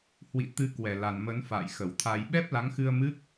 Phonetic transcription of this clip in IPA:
hwḭ˧˨ t̪ɨ˧kwɛ˧˩la˨˩n mə˨˦nfa̰ː˧˨jxə˧˩wt̪ʰa˧j ɓɛ˦˥p̚la˨˦ŋxɨ˧ə̯ mɨ˦˥k̚

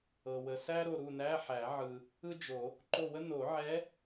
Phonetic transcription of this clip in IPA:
ɤ˨wə˨sæ˥ ɾo˦˨ɾu˦˨næ˧˥˧ħæ˨˩˦ ʕɯ˨ | ɯ˥d͡ʒo˨˩˦ | ǃo˦˨wə˥ no˨˩˦ʕɛ˧˥

